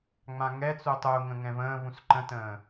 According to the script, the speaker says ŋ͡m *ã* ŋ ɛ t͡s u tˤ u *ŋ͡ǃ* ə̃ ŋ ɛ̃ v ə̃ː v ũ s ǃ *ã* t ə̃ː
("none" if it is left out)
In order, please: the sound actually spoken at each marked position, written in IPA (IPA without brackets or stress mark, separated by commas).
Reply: ã, ŋ, ə̃